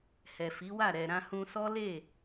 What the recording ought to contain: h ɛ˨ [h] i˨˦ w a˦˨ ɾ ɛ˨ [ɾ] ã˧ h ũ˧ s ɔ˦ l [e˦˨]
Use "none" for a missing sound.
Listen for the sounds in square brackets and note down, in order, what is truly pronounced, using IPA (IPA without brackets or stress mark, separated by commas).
f, ɾ, e˦˨